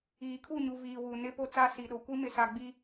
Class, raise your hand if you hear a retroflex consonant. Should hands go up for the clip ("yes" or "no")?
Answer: no